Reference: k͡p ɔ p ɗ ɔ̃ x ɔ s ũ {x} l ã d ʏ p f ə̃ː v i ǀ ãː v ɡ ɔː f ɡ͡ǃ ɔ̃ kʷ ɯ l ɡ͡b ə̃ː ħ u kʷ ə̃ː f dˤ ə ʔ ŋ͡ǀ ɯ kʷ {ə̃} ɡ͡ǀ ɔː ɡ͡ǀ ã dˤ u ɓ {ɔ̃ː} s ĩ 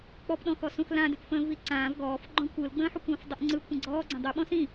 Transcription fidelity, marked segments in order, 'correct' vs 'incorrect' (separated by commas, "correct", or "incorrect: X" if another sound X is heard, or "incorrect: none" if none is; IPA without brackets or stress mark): correct, correct, incorrect: ɔ̃